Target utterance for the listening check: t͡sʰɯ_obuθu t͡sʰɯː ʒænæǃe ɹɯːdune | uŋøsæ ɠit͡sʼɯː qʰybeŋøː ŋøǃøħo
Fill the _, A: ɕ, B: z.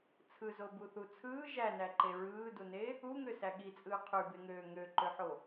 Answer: B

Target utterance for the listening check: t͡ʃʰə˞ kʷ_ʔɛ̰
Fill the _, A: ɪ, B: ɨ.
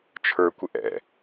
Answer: A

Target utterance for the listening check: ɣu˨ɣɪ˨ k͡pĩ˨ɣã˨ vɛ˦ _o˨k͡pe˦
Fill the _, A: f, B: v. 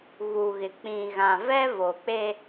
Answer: B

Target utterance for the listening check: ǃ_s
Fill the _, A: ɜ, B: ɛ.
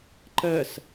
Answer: A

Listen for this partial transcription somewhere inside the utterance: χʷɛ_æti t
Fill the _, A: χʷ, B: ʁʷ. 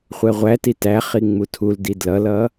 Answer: B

